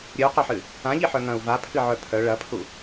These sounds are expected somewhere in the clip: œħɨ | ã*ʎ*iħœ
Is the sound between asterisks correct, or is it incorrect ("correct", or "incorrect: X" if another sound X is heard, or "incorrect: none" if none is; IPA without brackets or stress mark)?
correct